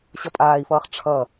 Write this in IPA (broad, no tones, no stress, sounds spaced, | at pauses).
ɕ ʌ pʼ aː i̯ f ʌː χ ʈ͡ʂʰ ʌ